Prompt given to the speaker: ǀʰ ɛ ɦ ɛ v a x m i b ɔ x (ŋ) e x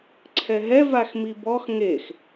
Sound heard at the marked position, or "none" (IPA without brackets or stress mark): ŋ